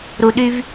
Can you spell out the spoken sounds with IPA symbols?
ɾu˨ɗy˧v

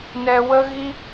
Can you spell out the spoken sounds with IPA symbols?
nɛ˧wə˦ɣi˦

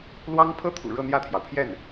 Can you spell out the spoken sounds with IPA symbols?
lwɑ˥ŋ pʰɤ˥t̪ʰṵ˨˩ ɻɤ˥˧n̪jä˥˩t̪ʰjɑ˩ʊ̯pʰjɛ˥˩n

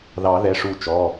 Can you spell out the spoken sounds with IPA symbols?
ðɑ˨˩˦ ðɛ˩˧˩ʂu˧˩t͡ʃɔ˩˧˩

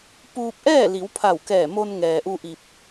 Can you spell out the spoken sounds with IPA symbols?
puː˧p̚ʔɛː˥˨ li˩˧wpʰa˧˩wkɛː˧˩ mo˧n ŋɛː˩ʔu˧ ʔi˧p̚

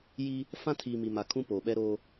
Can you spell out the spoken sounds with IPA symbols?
ji˦ | fã˦tʰiː˨ mi˨ma˨ kʰũ˦poː˨ɓɛ˦ɾoː˦

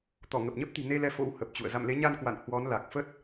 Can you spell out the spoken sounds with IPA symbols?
t̪ɔ˧˩ŋə˨˩p̚ɲə˦˥p̚ t̪i̤˨˩ne˧lɛ˨˦ fo̰˧˥whə˨˩p̚t͡ɕṵ˧˨ə̯ za̰˧˨mle˨˦ɲa˧nkwa̰˧˨n hwɔ˨˦nla˨˩k̚ fə˦˥t̚

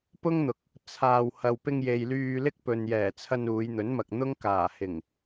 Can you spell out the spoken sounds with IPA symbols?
pʊ˥ŋn̪ʊ˨k̚ | t͡sʰaː˧w hɐ˨wpɪ˧ŋje˨j lyː˧lɪ˥k̚ pɵ˨njɛː˨˩t͡sʰɐ˧n uː˨˧jn̪ɵ˨˥nmɐ˨k̚n̪ʊ˥ŋ kaː˨˩ hɪ˨˩ŋ

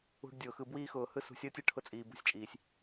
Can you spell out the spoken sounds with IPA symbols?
ṳ˧ɖdʲʊː˨xɯ˧ bwiː˧xʊː˨ hɯ˦sṳ˨˦sʲ əː˦tʲɯ˧ ʈʰʊ˧t͡sʼiː˨bṳ˧sʲt͡ʃʼiː˨sʲ

